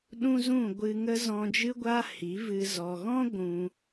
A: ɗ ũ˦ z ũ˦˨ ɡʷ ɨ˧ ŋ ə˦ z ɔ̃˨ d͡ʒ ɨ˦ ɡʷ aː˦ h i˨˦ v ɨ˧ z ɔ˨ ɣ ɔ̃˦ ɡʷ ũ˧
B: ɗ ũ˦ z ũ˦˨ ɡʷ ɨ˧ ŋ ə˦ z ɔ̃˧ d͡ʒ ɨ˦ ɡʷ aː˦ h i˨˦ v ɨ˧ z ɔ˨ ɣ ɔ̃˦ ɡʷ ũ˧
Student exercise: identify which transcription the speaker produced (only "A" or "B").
B